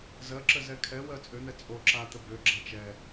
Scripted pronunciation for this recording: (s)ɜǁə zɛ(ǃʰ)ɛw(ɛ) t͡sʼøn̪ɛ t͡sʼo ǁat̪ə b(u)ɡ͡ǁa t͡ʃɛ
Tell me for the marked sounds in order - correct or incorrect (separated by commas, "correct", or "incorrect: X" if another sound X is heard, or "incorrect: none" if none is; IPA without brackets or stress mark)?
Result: incorrect: z, incorrect: kʰ, incorrect: ɜ, incorrect: ø